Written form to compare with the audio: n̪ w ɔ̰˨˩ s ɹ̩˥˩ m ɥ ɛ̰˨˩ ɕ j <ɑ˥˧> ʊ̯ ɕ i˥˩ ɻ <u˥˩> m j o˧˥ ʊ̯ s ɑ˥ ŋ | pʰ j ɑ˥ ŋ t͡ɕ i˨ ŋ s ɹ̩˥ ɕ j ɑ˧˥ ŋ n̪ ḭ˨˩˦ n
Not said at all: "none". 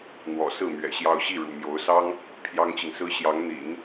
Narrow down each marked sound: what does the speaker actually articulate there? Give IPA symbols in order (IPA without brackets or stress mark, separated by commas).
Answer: ɑ˥˧, ṵ˨˩